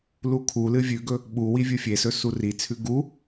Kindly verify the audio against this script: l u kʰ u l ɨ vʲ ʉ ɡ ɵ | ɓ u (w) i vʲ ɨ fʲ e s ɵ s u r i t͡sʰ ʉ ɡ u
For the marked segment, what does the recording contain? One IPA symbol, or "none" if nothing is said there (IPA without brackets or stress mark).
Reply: w